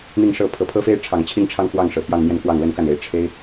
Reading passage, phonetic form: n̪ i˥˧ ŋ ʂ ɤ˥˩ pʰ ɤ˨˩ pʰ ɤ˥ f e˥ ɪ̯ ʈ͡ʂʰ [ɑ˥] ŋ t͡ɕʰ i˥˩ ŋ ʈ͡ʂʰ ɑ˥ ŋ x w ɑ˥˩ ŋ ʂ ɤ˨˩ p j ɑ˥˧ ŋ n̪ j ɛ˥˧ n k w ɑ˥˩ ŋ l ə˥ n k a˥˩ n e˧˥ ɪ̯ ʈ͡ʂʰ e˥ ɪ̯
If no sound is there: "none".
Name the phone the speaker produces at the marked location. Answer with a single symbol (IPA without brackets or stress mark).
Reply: ɑ˨˩